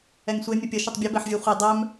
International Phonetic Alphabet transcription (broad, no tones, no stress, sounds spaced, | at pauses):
ɛ ŋ sʷ e mʲ ɘ pʲ ə ʃ ə tˤ bʲ ɘ b ɛ ħ vʲ e χʷ e dˤ œ m